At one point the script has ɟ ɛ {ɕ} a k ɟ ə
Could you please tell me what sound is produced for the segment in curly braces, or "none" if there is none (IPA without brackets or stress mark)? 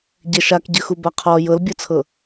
ʃ